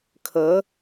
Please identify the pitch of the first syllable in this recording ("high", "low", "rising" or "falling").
rising